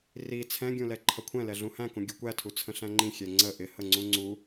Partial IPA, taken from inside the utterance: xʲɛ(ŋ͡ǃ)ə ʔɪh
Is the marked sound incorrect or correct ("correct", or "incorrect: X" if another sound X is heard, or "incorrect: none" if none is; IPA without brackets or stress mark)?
incorrect: ŋ͡ǀ